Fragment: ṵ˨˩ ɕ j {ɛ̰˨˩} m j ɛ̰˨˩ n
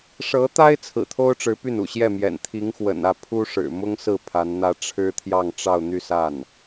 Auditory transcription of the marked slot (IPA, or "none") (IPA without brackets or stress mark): ɛ˥˩